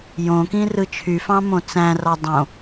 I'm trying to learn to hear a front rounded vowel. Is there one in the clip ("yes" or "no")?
yes